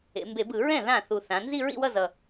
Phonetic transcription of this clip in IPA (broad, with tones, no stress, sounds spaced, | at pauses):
ḛ˩˧ m b e˧˩˧ b ɯ˧˩˧ ɹ ɛ̃˥˩ ð ã˥˩ θ u˨˩ θ ã˩˧ n z i˥˧ ɹ ḭ˥˧ w ʌ˥˧ z ʌ˨˩